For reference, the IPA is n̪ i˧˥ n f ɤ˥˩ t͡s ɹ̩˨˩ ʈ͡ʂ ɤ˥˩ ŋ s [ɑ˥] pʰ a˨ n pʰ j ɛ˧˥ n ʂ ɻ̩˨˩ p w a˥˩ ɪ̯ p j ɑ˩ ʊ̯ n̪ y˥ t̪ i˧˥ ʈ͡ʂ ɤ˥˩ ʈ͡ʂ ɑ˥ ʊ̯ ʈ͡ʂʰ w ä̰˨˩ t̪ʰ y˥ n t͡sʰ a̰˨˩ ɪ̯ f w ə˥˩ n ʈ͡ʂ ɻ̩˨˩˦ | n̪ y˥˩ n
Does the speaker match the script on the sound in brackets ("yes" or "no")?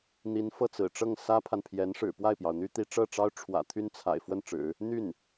no